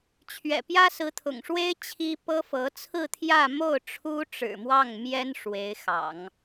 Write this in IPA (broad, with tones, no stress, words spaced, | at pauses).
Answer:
t͡ɕʰɥɛ̰˨˩pjä˥ sɹ̩˧˥t̪ʰʊ̰˨˩ŋʂwe˥ɪ̯ t͡ɕʰi˥pɤ˥fɤ˧˥ t͡sʰɹ̩˥˧t̪ʰjä˥˧ mo˥˩ʊ̯ ʈ͡ʂʰu˥ʈ͡ʂɻ̩˨˩mwɑ˥˩ŋ mjɛ˥n ʂwe˧˥ɪ̯xɑ̰˨˩˦ŋ